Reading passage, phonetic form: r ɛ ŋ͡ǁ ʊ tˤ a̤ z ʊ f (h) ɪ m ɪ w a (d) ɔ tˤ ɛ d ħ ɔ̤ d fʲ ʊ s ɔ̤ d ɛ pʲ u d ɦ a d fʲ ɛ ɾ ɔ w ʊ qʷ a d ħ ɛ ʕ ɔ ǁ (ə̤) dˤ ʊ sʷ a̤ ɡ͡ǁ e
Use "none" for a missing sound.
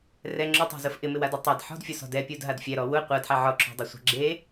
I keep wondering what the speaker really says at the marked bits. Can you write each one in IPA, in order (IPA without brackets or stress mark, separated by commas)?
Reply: ʔ, d, ɔ̤